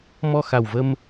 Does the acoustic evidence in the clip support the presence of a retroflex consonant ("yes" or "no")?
no